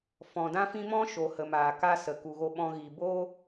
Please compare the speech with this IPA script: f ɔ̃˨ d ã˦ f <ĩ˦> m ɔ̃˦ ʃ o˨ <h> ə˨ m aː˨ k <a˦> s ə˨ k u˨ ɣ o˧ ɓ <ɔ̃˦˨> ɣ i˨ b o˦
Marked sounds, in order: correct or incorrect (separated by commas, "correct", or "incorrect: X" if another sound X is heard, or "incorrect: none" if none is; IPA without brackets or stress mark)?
correct, correct, correct, incorrect: ɔ̃˧